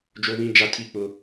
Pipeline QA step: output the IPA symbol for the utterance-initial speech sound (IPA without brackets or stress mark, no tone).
d͡ʒ